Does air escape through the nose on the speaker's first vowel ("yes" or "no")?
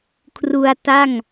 no